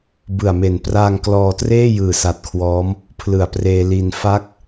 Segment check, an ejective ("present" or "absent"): absent